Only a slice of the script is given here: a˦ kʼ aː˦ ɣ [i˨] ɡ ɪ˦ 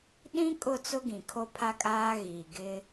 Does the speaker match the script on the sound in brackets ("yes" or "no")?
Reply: yes